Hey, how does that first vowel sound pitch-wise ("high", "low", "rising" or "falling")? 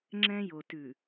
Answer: high